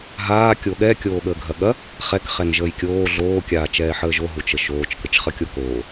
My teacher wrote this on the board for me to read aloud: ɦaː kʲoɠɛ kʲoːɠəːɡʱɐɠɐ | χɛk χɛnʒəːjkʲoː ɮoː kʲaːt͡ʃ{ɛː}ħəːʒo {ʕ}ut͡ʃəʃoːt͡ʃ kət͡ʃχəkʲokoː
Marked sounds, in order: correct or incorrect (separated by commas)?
correct, incorrect